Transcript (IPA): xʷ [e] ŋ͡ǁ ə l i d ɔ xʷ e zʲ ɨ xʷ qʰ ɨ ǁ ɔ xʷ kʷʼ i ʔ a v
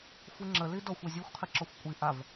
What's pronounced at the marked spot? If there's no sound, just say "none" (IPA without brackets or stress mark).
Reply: ɨ